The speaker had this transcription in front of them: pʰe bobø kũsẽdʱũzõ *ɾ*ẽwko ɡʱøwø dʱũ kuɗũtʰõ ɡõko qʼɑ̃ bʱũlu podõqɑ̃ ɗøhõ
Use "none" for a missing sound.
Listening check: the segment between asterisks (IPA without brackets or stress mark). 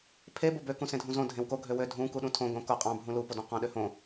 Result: dʱ